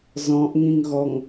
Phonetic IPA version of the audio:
z ɔ̃ ʔ ŋ ĩ ŋ ɣ ɔ ŋ

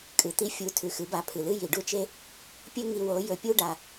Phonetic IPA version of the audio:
kʼ ɨ˨ t̪ i˧ fʲ u˨˦ tʰ ʉ˨ x ɨ˨˦ b a˧ pʰ ɨ˨ l ɨ˦ j i˨ ɖ u˦˨ t͡ʃ e˦ | pʲ ɵ˦ ŋ i˧ w o˨˦ j ɵ˨ pʲ u˦ ɖ a˧

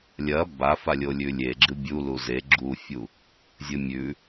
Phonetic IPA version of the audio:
lʲ ɐ b a f a lʲ o lʲ ʉ lʲ e ɡ͡ǁ ɨ bʲ u l u z e ɡ͡ǁ u fʲ u | zʲ ɨ mʲ ʉ

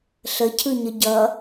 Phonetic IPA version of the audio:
ɬ ə cʰ ɯ ɲ ə ɟ ʌ

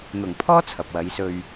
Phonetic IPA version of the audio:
n̪ ʊ˨˩ ŋ pʰ ɔː˥ t͡sʰ ɐ˨ p̚ w ɐ˨˧ j s ɵ˧ ɥ

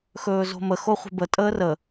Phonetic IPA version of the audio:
x ɵː z o̤ m ə x o χʷ ə̤ b ə tʼ əː r ə

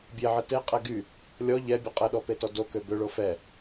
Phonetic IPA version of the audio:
bʲ e ʕ ə t e qʼ ɛ ɡ y | lʲ ɔ ʎ ɛ bʲ ə qʼ ə ɗ ɔ p e t ɔ d o k ø b ø ɭ o f ɛ

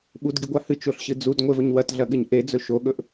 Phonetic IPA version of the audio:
ɓ u d ɡ i ɡʷ a h ɨ t͡ʃ o ɬ ɕ ɨ d͡z u d ŋʷ e v ɵ ɲ w ɐ t ɮ ɐ ɠ ɨ ɲ ʔ e d͡z ɵ ʃ o ɠ ɵ ʔ

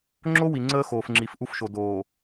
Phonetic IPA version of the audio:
ŋ͡ǁ o˦ w i˨ ŋ͡ǀ əː˦ x oː˨ f ŋ͡ǁ i˨ f ʔ u˦ f ʃ o˨ d oː˨

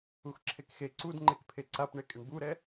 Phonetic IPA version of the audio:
u x ǁʰ e k x e ǀ u d ŋ͡ǃ e k pʰ e ǀ a p ɳ e kʼ ɪ ɳ b u ɾ ɛ

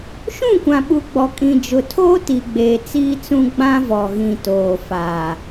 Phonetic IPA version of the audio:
ʃ ũ˦˨ kʷ ã˨ ɓ u˨ ɡ͡b ɔ˨ kʼ ĩ˨ d͡ʒ ʊ˨ tʰ oː˦ t i˨ ɡ͡b eː˨ t͡s iː˦ t͡s ũ˦ ɡ͡b ã˦ v ɔ˨ ɣ ĩ˨ t oː˨ f aː˨

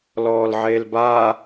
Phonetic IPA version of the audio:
l ɔː l ʕ eː l b aː

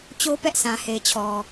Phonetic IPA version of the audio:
t͡ɕ o˦ p ɛ˦ ʔ sʰ ã˨ h e˨ ɪ̯ t͡ɕʰ ɔ˨

